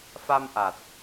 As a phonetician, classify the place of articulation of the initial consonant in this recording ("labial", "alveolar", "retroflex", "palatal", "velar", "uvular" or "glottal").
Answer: labial